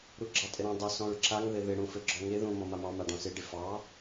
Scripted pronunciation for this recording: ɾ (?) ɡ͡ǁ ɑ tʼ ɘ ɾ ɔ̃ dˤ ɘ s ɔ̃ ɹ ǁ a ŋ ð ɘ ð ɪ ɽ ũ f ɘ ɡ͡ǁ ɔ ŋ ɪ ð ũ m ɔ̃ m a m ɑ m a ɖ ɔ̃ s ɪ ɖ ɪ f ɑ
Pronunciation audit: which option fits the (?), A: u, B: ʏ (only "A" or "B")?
A